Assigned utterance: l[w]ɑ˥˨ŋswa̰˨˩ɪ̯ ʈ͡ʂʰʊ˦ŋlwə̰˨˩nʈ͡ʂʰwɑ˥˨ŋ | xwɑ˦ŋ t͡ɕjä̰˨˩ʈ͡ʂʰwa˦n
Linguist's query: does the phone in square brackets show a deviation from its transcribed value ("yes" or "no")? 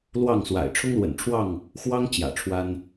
no